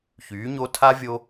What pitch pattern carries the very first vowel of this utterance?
rising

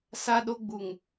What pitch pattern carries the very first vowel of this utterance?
high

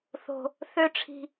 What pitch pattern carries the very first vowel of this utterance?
high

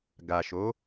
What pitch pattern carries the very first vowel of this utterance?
low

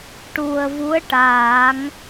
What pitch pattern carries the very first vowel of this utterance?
low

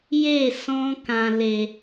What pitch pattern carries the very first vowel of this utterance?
falling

